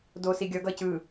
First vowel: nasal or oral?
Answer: oral